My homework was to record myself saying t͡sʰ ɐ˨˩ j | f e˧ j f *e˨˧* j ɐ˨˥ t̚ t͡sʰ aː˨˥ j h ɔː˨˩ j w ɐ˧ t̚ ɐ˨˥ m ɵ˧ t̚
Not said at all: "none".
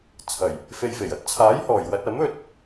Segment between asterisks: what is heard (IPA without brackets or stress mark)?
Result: e˨˩